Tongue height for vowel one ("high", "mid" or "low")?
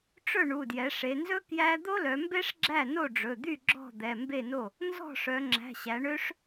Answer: mid